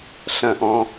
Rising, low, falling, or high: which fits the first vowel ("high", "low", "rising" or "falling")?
falling